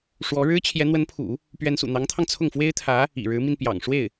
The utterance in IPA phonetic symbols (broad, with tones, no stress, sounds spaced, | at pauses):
ʂ w ɔ˧˥ ɻ ɻ̩˥ t͡ɕʰ j ɛ˧˥ n̪ w ə˧˥ n pʰ ṵ˨˩˦ | p ɥ ɛ˧˥ n s ṵ˨˩ n̪ ɑ˧˥ ŋ t̪ʰ ɑ˧ ŋ t͡sʰ ʊ˥˩ ŋ f w e˥ ɪ̯ t̪ʰ ä˧˥ | ḭ˨˩ ɻ ɻ̩˧˥ m i˧ n p j ɑ̰˨˩ ŋ ʂ w e˥˩ ɪ̯